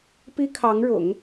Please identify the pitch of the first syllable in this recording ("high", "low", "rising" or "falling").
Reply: high